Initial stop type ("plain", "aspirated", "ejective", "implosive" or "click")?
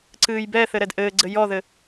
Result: click